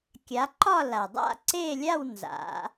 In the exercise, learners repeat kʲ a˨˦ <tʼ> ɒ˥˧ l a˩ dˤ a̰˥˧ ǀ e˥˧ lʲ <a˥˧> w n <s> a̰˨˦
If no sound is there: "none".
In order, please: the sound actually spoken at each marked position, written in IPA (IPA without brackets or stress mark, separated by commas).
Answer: ǃ, a˥˧, z